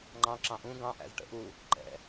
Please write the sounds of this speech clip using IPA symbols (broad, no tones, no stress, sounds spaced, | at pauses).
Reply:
ŋ͡ǃ ɑ̃ ǁ ɑ̃ ʔ ũ ɡ ɑ̃ ʔ æ̰ z ʈ ə̰ ʔ u | ǃ ɛ̰